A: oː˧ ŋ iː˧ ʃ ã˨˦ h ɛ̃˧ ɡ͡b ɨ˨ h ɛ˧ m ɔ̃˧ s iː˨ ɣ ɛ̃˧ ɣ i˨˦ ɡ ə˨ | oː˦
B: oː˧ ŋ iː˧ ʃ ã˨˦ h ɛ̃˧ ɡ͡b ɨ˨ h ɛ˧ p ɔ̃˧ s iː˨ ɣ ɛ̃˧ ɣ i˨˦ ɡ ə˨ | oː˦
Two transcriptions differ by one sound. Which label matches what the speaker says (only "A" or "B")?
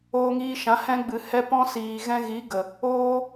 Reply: B